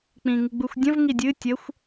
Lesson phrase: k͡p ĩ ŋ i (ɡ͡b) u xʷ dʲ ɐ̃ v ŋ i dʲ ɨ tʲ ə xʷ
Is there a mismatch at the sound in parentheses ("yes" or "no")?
no